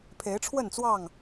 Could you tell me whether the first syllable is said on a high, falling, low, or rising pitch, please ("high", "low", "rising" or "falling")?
rising